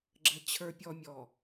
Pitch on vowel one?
low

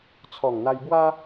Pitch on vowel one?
low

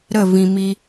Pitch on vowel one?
falling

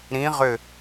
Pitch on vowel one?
rising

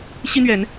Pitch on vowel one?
high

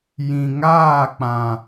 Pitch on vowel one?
low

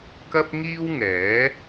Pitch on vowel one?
high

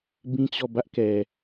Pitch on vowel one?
high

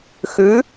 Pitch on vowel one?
rising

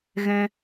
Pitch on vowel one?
high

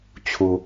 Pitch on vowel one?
high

